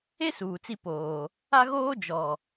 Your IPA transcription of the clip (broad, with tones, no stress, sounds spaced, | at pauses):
e˦ s uː˨ t͡s i˦ p oː˨ | a˦ ɣ oː˦ d͡ʒ ɔ˨